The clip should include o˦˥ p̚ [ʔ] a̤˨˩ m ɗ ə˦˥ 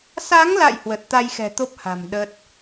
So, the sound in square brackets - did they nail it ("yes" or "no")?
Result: no